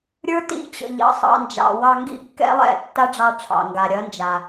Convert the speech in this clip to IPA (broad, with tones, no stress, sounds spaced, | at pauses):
ɾʲ ə˞˦ t ḭ˦˨ t͡ɕ ə̰˨ ʎ ɑ̰˧ sˤ ɑ̰˧ n d͡ʒ ɑ̰˨ w ɑ˧ ŋ ɡ ḭ˦ kː ɛ̰˦ lˠ ɛ̰˦˨ tː a˦ ɖ͡ʐ ɑ˧ ʈ͡ʂʰ ɑ̰˨ ŋ ɡ a˨ ɾʲ ɐ˨˦ n d͡ʒ a˨